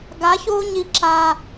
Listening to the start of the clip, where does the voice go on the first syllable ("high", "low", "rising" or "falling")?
rising